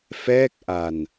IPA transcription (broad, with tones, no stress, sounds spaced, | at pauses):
f ɛː˥˩ k̚ ʔ a˧ n